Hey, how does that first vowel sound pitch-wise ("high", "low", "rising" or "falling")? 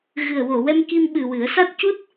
low